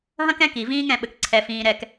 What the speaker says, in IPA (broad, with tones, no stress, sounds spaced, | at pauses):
ɦ ɐ̃˦ k ɛ̃˦ k i˨ v ĩː˦ ŋ ɛ̃˨ ɓ ɘ˨ k ǀʰ ɛ˨ f ĩː˨ ɾ ɛ˨ k